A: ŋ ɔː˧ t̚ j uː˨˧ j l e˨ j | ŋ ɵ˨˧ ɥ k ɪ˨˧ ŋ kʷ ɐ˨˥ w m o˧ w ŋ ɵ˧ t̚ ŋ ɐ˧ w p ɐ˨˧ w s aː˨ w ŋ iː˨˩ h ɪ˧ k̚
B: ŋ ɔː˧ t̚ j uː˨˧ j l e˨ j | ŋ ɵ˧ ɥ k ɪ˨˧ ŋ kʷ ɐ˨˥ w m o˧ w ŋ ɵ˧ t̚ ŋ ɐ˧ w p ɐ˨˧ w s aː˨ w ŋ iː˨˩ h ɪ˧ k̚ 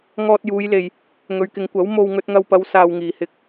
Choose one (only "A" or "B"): A